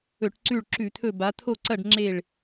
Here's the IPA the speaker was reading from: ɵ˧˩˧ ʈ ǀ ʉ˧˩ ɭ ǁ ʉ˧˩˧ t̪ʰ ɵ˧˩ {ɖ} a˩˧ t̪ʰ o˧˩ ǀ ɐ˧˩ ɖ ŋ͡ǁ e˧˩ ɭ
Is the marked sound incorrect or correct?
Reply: incorrect